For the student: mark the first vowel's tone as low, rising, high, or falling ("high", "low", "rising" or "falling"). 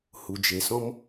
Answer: low